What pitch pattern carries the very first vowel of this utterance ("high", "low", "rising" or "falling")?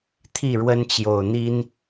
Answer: falling